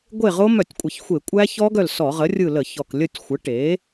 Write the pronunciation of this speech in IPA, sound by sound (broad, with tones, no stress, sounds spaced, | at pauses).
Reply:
ɡʷ e˦˨ ʁ o˦˥ m œ˧˩˧ tʲ kʷʼ ə˨˩ ç xʷ e˧˩˧ kʷʼ æ˦˥ ç ɔ˦˥ ɡ œ˦˨ l s ɔ˧˩˧ ʁ ə˩˥ rʲ ɯ˦˨ l ə˧˩˧ ç ɔ˨˩ k lʲ ə˦˨ tʲ xʷ ə˩˥ ʈ e˩˥